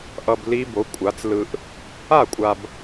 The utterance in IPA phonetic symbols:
ʔʌ˨b li˦˥bo˩˥kʷʼa˩˥t͡s lɯ˨ʔ | a˥˩kʷʼa˨b

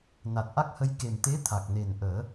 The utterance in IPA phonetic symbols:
na˨˩t̚ʔa˦˥k̚hə˧j ke˨˩mt̪e˧˥t̪ʰa˨˩k̚ ne˨˩nʔəː˨˩˦

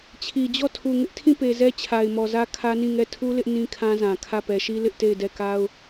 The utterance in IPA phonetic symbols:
t͡ɕʰi˨d͡ʑɔ˦˨ tʰu˨ŋɪ˦ʔtʰĩ˦˨pe˨ zɛ˦t͡ɕʰa˨ɪ̯mɔ˨zä˦ kʰä˦nĩ˦˨ŋɛ˦˨ tʰu˦lɪ˦ʔ nĩ˦kʰã˦zã˨kʰä˦˨ pɛ˨ʃi˦ lɪ˦ʔte˦˨ɪ̯dɛ˦˨ ka˦ʊ̯

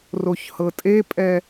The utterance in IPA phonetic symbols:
roçhɤtʼepʼɛ

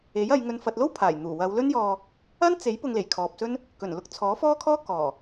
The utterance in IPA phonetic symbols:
e˨˥jɐ˨˧j ŋɵ˨nfɐ˨t̚lo˥w pʰaː˨˩jn̪uː˨˩wɐ˨˧w lɵ˥njɔː˧ | ɐ˥n t͡se˨˥j pʊ˧ŋle˨˩jkʰɔː˨p̚sɵ˥n | kɵ˨˩n lʊ˧k̚t͡sʰɔː˨˥fɔː˥kʰɔː˥ kɔː˨˩

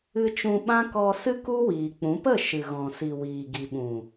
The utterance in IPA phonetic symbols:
ɨ˧t͡ʃũ˧ ɓã˦kɔ˧sɨ˦ku˦ wiː˨k͡pũ˨˦ pə˦˨ʃɨ˨ ɣɔ̃˨si˨ wiː˨ɡi˨ɓũ˨

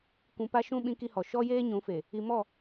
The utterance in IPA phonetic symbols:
kʷũ˨pa˦ ʃũ˦ ɓĩ˦ki˦hɔ˨ ʃɔ˦jeː˦ ɲũ˨˦fe˨ | i˨mɔ˦˨

